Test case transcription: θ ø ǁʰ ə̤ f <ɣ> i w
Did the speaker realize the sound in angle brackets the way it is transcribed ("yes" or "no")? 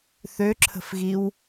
yes